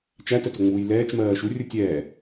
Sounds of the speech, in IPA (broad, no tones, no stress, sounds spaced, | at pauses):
t͡ʃ æ t ə t ʊ ŋ͡m uː j l ɛː t͡ʃ m ɜː ʃ u rʲ u tʲ ɛː